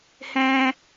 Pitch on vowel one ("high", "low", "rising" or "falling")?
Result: high